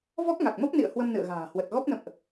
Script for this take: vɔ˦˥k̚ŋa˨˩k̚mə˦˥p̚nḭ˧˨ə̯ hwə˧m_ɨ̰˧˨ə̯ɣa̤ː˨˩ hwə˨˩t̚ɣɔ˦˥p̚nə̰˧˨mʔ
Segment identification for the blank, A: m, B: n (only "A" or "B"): B